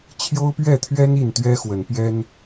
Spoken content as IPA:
t͡ɕʰ j o˦ ʊ̯ p ɥ ɛ˥˨ t̪ʰ ɥ ɛ˦ n i˥˨ n t̪ ɥ ɛ˦ x w ə˨˦ n p j ɛ˦ n

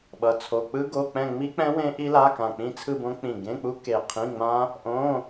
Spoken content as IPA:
ɓ ʌ˧˥˧ t͡sʰ o˧˥˧ k͡p ɯ˦˥ ɡ o˧˥˧ k͡p ɛ̃˥˧ ŋ͡m i˦˥ k͡p ɛ̃˦˥ w ẽ˦˥ ʔ i˦˥ l a˧˥˧ k ã˧˩ k͡p ĩ˥˧ t͡sʰ ɯ˥˧ b õ˦˥ k͡p ĩ˧˩ ɡ ẽ˧˥˧ k͡p u˦˥ k e˧˩ qʰ ĩ˧˥˧ ŋ͡m ã˦˥ | ʔ õ˧˥˧

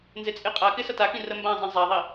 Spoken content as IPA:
n z e t͡sʼ e qʼ a k ɪ s ɐ t a k ĩ r ə m b ã zˤ ĩ zˤ a ðˤ i

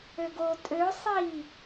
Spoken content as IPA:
ø ɡ o tʼ ø sˤ i

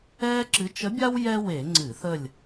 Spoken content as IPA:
ɛː˥ ǁ ɨ˧˥ t͡ʃ ə˧˥ bʲ a˥ w j ɛ˥ w e˧˩˧ ŋ͡ǀ ɨ˧˩˧ θ ə˦˨ lʲ

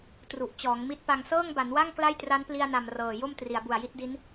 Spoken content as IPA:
t r u˨˩ ʔ t͡ɕ ɔː˩˦ ŋ m i˦˥ t̚ p a˧ ŋ s ɤː˥˩ ŋ b a˩˦ n w a˥˩ ŋ k l a˥˩ j t r a˦˥ n p l i˧ a̯ n a˨˩ m r ɤː˨˩ j o˥˩ m t r i˩˦ a̯ b u˨˩ a̯ j i˦˥ t̚ d i˦˥ n

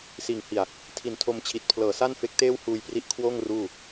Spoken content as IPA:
s iː˨˩ ŋ h i˨˩ a̯ | tʰ i˨˩ n tʰ o˧ m t͡ɕʰ i˨˩ t̚ pʰ l ɤː˨˩ s a˥˩ n f e˦˥ k̚ t eː˥˩ w h uː˧ j p r i˦˥ ʔ kʰ w oː˥˩ ŋ r uː˥˩

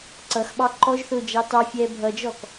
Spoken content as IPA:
ǀ ʌ x ɓ ɑ ǃ ɔ ʒ θ ʊː d͡ʒ ɑ t ɑ fʲ ɛː bʱ ʌ d͡ʒ ɔ k

